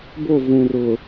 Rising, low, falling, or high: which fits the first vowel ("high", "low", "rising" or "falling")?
falling